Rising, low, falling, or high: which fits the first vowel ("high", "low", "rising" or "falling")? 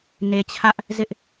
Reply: low